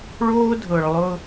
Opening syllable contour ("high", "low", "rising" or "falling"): high